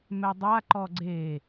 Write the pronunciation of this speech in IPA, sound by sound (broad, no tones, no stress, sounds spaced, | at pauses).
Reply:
m ɛ dˤ a ǃ ɔ ɡ͡ǀ e